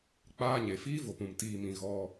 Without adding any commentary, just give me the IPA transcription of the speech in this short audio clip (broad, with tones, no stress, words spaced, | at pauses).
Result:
k͡paː˧ɲe˨fiː˦vo˨p ũ˨m tiː˨mĩ˨ ɣɔ˧